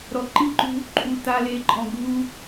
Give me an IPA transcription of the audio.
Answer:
ɾ ɔ˨ ǃ i˦˨ ǃ ṳ˦ | ǃʼ u˨ t a˨ l e˨ ǃʼ ɔ̃˨ ɡʱ u˦

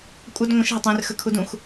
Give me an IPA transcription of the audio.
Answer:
kʷʼ ə d ŋʷ ə̃ ʃ ɦ ə tˤ ẽ r x ə kʰ u d ũ x

